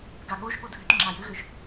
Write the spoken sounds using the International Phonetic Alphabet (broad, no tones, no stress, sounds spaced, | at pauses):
ɡ a ɠ o ʒ ɠ o dʱ ʏ t ŋ͡ǁ a j ʏ ɣ ʏ ʒ